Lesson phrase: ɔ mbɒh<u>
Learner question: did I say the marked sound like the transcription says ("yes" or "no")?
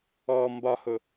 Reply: no